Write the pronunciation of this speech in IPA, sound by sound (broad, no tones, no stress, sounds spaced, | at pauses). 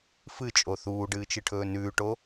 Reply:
f ɨ t͡ʃʼ o θ uː ɖ ɨː t͡ʃ ɨ ʈʰ ɵː n ʉː ʈ o